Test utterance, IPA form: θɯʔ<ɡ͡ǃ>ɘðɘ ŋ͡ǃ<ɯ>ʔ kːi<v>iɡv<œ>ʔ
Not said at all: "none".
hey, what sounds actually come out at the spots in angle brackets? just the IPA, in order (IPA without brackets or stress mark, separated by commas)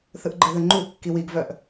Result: ɡ͡ǃ, u, w, œ